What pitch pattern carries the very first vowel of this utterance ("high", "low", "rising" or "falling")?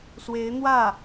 rising